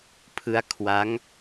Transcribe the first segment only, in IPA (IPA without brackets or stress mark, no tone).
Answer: pʰ